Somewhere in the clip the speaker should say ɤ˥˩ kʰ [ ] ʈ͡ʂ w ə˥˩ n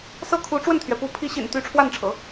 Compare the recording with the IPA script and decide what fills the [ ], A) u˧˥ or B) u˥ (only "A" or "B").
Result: A